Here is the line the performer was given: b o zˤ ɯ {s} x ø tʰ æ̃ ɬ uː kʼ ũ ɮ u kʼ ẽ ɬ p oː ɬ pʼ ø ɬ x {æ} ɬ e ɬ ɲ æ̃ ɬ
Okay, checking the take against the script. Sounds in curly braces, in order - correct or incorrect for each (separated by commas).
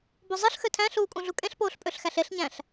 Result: incorrect, correct